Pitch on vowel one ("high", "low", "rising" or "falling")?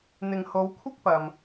low